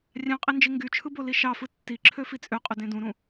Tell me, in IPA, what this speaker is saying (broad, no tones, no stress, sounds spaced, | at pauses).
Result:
rʲ ɑ̃ qʼ i n d͡ʒ i ŋ ɡ y t͡ʃʰ ɯ b o l i ʃ ɑ f ɯ tː i ǁʰ ø f i t͡sʼ ø qʼ ø d ẽ d ũ ɾ ũ